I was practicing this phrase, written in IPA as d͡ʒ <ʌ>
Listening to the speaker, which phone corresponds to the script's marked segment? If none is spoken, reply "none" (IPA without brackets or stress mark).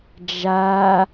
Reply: a